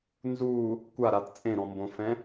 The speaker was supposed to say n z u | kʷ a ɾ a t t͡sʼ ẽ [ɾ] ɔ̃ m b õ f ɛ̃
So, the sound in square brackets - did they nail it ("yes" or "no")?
yes